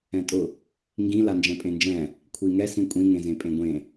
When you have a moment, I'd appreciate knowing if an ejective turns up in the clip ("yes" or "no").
yes